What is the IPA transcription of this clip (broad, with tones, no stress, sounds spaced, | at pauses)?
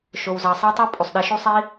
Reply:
ʃ o˩ w z ɑ˩ sˤ e˧ tˤ u˧ pʼ u˩ sˤ ɗ e˩˧ ʃ u˧ sˤ i˧